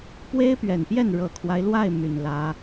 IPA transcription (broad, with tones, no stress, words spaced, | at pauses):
pwe˥ɪ̯pɥɛ˨˩npjɛ˥˩n ɻɤ˨˩kʰwa˦ɪ̯lwa˥˩ɪ̯ my˨˩nlä˧˥